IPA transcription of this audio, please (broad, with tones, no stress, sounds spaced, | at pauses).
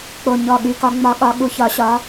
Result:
k͡p o˨˩ ɲ ɔ˨˩ ɠ y˨˦ k ɒ˨˦ ŋ͡m ɒ˨˦ ɠ ɒ˨˦ ɠ u˨˦ ç ɒ˨˦ ɕ ɒ˨˦